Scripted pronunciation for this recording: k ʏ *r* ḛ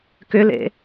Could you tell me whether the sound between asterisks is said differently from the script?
yes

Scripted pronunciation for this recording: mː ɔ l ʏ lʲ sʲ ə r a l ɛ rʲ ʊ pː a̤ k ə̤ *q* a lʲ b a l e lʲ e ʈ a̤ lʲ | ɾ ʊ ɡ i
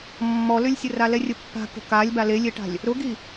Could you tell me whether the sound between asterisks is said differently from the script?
yes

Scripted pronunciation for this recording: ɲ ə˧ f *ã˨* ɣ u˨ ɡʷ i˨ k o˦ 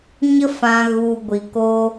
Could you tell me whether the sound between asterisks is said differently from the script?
no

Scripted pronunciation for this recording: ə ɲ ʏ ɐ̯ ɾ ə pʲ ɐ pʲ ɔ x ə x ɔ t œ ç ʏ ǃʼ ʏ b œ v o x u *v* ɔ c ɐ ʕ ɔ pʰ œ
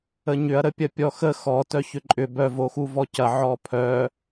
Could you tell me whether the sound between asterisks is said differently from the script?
no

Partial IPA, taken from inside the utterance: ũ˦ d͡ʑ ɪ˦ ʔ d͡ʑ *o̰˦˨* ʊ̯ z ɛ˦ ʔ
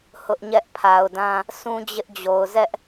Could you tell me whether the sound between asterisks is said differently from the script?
yes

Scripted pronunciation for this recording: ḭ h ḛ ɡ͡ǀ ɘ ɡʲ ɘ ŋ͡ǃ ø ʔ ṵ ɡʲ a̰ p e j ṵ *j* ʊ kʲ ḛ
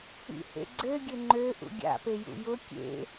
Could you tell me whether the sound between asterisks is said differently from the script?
no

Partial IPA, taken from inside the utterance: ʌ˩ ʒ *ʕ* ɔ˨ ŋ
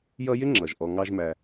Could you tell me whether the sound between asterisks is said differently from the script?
yes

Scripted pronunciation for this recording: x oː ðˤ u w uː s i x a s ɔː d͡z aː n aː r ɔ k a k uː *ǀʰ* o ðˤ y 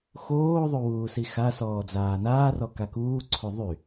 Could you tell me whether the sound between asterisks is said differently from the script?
no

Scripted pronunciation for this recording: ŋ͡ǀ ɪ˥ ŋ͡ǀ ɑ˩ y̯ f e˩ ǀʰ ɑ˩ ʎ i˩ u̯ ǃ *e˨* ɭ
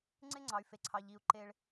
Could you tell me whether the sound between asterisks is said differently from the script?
no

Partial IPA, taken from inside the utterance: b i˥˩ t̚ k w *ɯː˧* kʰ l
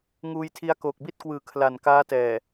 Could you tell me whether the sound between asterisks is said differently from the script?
yes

